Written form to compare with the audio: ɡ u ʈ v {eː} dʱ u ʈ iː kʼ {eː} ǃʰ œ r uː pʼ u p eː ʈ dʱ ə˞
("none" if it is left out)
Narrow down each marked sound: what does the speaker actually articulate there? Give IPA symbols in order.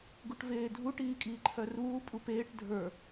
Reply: eː, iː

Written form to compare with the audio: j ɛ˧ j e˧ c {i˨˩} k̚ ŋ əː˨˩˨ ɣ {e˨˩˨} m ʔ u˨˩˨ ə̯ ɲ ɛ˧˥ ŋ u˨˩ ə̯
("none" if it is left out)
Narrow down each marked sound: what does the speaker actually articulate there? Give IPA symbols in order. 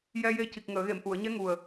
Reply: i˨˩, e˨˩˨

